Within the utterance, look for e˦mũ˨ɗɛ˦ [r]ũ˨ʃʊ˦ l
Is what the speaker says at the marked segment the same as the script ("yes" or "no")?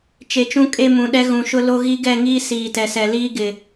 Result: no